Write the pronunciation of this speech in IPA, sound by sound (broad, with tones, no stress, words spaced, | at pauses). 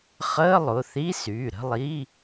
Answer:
χəː˧˥˧lˠʊ˩˧˩θi˧˥˧ syː˩˧˩ɾə̤˥˧lˠi˧˥˧